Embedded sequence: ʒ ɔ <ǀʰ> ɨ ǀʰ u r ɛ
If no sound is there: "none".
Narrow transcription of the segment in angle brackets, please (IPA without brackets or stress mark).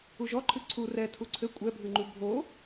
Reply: ǃʰ